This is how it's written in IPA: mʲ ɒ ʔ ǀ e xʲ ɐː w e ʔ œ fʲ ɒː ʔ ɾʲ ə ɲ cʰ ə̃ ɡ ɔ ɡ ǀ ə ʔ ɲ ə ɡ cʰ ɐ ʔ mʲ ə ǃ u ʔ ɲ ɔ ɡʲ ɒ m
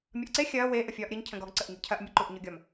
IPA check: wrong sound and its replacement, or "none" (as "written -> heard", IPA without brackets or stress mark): œ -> ə